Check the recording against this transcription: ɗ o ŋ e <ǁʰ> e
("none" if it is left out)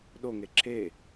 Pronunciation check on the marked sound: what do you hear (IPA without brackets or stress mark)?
ǁʰ